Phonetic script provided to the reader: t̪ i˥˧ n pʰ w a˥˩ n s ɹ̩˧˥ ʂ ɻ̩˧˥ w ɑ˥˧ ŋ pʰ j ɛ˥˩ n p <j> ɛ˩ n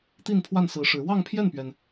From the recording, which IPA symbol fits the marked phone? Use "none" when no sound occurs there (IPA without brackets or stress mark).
ɥ